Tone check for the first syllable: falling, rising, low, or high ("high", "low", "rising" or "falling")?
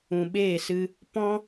low